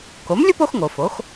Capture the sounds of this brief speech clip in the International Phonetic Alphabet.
ko˩˥mlʲu˥po˩˥xŋo˩ fo˩˥x

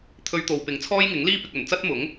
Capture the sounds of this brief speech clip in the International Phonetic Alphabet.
t̪ʰɵ˧ɥt̪o˨wpɪ˨ŋ t͡sʰɔː˥jŋɪ˨˥ŋliː˥ pɪ˨k̚ɵ˨˩nt͡sɐ˥t̚mʊ˨˥ŋ

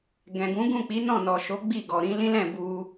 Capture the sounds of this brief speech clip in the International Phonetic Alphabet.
ɡɛ̃˨ɡũ˨˦ɡũ˦˨ k͡pi˨˦nɔ̃˦˨nɔ˨ ʃo˨˦ ɡ͡bi˦˨ ɡɔ˨ɾĩ˨˦ lĩ˦lɛ̃˦˨ bu˧

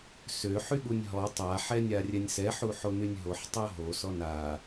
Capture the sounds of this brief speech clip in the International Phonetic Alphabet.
sø ħyɠunʲɦɔ tˤa ħɛnʲarʲɛnʲsɛ ħuħonynʲɦoħ tˤoɦo sɔna

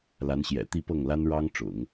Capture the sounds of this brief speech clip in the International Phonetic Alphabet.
la˧˥nɕjɛ̰˨˩ t̪i˥˧pɤ˥˩ŋla˥n ɻɑ˥ŋʈ͡ʂʊ̰˨˩˦ŋ

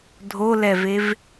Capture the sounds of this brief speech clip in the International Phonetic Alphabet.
dʱolɛvev

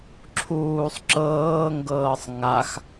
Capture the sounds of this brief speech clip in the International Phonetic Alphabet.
ǁʰuːsˤ ǁɤːŋɡɤːsˤ ŋax

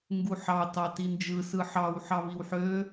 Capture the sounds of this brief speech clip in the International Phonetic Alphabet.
ŋɡuħɑ tɑtind͡ʒɯ sɯħɑw ħɑβiwħø

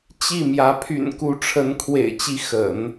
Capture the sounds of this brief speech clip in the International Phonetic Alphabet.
t͡ɕi˥˩mjä˧˥ pʰy̰˨˩nku˧˥ʈ͡ʂʰə˧˥n kʰwḛ˨˩ɪ̯t͡ɕi˧˥ xə̰˨˩˦n

